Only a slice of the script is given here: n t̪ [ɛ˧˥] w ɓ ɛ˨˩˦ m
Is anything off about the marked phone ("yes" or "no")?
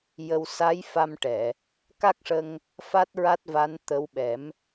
yes